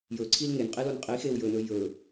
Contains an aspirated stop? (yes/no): yes